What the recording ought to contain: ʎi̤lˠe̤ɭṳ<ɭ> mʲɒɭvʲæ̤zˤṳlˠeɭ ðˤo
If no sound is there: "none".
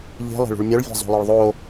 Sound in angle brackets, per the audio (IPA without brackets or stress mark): ɭ